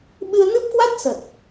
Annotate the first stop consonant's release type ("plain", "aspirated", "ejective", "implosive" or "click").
implosive